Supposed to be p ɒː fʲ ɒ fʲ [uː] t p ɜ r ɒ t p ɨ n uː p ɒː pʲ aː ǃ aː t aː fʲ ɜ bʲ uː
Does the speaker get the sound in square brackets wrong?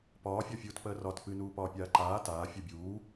no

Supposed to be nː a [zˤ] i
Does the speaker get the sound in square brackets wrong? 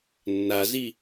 yes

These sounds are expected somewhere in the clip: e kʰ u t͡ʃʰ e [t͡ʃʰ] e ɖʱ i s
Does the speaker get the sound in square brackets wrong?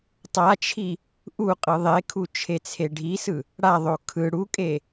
yes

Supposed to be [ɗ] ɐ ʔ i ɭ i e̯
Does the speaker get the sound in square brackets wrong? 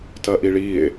yes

